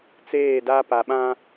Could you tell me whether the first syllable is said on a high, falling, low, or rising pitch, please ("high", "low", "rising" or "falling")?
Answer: falling